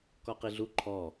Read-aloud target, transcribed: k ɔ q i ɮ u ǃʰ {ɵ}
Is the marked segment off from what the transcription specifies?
yes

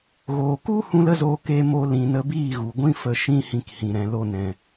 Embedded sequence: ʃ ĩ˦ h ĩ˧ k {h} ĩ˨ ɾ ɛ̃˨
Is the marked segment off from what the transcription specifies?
no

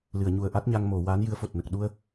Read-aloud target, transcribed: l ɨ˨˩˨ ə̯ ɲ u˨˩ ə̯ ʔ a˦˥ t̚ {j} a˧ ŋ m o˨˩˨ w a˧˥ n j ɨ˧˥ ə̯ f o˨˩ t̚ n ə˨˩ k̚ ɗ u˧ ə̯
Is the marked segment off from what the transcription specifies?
yes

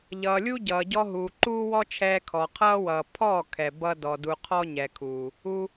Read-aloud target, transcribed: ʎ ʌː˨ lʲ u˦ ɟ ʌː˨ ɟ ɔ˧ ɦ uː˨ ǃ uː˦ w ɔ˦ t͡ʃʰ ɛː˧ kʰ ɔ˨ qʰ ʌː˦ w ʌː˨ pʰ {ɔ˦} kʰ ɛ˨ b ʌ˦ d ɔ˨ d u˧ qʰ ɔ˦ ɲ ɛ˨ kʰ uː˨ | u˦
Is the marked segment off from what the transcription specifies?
yes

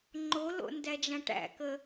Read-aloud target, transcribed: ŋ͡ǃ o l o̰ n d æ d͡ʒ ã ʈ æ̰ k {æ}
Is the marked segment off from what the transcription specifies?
yes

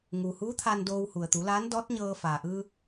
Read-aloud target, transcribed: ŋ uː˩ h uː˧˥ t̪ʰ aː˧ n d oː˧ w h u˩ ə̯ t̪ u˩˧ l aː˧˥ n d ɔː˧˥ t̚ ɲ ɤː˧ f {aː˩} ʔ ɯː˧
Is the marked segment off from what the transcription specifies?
no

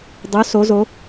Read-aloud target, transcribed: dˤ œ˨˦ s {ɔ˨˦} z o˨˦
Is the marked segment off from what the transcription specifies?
yes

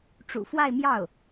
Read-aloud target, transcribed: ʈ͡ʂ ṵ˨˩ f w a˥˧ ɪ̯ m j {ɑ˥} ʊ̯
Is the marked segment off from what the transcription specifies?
yes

